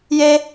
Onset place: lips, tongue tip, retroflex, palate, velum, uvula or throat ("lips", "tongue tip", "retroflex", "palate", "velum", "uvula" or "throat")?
palate